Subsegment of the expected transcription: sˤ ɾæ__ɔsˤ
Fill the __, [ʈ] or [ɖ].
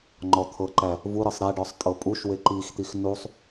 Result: ɖ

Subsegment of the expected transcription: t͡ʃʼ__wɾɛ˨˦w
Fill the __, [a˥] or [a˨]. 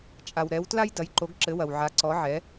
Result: a˨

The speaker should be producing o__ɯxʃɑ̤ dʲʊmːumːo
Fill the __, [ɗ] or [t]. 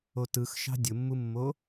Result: t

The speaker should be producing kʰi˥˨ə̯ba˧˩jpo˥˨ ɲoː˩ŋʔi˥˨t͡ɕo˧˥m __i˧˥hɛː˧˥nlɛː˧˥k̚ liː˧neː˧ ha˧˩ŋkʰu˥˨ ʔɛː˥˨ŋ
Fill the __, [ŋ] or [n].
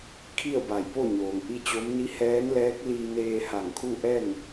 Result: n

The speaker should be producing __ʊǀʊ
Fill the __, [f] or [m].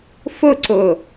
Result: f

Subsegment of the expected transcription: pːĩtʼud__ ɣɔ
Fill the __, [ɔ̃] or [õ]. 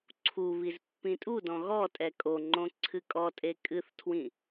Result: ɔ̃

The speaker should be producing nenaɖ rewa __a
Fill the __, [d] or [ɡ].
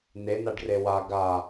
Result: ɡ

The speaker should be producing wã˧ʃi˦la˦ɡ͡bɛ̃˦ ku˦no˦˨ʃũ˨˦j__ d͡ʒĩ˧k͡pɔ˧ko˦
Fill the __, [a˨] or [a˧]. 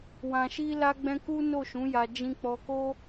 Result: a˧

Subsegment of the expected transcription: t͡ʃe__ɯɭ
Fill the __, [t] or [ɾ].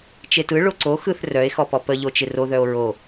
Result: t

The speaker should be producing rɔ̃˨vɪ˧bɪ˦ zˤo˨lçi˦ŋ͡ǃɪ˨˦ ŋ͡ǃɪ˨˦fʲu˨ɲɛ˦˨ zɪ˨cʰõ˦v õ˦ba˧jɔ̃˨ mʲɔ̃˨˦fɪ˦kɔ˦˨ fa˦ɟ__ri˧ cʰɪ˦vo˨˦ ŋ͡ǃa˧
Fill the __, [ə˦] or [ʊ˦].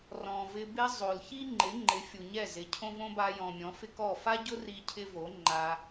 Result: ʊ˦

